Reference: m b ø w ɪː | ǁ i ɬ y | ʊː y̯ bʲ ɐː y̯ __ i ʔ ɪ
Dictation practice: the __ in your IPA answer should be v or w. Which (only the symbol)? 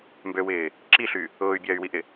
w